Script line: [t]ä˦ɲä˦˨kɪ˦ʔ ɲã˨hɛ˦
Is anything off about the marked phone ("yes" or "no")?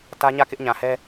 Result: no